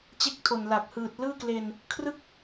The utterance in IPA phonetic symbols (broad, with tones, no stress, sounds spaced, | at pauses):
t͡ɕ e˦˥ k̚ tʰ o˨˩ n l a˨˩ k̚ h ɯː˨˩ t̚ l ɯː˥˩ k l e˧ n | kʰ r ɯ˥˩ k̚